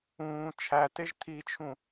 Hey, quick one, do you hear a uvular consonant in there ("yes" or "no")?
no